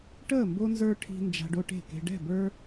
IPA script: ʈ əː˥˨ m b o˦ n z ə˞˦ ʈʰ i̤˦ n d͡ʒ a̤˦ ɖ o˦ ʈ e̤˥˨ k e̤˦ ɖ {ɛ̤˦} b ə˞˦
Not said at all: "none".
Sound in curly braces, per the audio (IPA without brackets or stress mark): ɛ̤˥˨